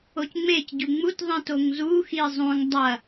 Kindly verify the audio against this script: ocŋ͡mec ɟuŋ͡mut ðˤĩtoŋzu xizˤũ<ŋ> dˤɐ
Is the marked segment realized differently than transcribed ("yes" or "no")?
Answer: no